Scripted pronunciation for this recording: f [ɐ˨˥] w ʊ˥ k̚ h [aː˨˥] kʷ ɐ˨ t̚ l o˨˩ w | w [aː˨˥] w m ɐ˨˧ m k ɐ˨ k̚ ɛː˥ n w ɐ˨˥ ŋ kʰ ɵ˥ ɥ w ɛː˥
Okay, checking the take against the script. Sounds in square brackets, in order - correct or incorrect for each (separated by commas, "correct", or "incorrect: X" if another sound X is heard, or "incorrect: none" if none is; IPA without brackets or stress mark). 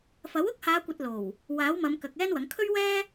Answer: correct, incorrect: aː˨˧, correct